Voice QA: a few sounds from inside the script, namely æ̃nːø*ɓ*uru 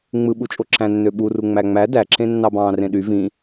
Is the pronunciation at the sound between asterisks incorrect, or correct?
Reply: correct